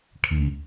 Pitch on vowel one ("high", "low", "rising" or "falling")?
low